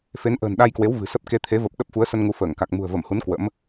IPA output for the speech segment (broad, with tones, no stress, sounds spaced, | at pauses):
f e˨˦ n ʔ ə̤ː˨˩ n ɗ a˧ j k w e˨˦ w v ɨ̤˨˩ s ə˦˥ p̚ k e˨˦ t̪ʰ e˨˦ v ə˨˩ p̚ ɗ ə˦˥ p̚ f u˨˦ ə̯ s ə˧ n ŋ u˨˦ f əː˧˩ ŋ k a˨˩ k̚ m ṳ˨˩ ə̯ v ə˧˩ m h u˨˦ n k w ə̰˧˥ m